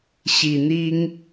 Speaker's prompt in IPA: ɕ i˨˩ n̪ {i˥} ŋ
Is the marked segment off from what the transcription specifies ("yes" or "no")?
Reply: no